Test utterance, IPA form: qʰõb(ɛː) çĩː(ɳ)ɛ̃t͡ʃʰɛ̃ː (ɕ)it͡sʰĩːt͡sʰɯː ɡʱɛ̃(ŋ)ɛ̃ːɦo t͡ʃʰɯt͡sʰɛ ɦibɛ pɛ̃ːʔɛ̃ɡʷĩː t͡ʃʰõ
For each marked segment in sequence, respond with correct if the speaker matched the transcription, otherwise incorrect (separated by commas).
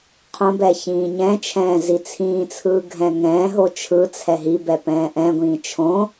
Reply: correct, incorrect, incorrect, correct